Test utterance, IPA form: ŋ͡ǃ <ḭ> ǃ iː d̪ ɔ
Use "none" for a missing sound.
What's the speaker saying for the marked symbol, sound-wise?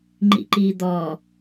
ḭ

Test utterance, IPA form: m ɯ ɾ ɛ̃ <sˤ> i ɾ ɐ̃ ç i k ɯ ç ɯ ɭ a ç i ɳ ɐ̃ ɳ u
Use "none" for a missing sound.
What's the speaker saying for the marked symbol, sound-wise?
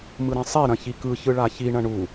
sˤ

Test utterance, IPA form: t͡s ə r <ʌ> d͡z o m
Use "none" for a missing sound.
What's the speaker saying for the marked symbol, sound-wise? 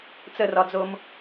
ɒ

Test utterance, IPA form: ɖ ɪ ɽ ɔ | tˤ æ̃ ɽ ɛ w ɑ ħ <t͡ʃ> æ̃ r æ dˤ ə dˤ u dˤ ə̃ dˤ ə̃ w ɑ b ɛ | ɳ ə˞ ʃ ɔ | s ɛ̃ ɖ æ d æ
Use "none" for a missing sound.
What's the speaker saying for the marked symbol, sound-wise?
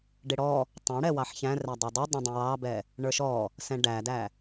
ç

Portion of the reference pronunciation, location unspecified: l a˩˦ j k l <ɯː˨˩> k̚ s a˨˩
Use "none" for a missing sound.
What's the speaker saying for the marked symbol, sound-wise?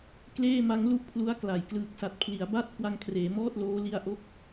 ɯː˨˩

